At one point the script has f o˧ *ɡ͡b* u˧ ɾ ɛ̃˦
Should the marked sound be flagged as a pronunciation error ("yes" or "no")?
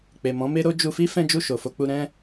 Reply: yes